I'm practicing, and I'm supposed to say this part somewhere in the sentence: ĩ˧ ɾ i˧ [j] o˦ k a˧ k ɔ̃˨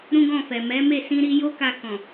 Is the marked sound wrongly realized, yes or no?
no